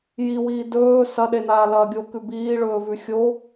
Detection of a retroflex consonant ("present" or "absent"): present